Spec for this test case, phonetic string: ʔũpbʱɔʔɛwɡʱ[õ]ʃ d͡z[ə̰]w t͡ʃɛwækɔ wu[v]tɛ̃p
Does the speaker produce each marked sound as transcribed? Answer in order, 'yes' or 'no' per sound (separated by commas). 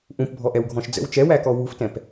no, yes, no